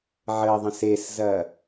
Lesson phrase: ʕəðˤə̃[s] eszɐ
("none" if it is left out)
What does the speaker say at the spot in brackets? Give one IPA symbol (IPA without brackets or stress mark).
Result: s